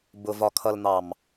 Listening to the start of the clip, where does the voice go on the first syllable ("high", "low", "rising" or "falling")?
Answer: low